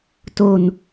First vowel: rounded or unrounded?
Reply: rounded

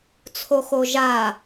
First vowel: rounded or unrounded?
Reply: rounded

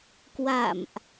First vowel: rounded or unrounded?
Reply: unrounded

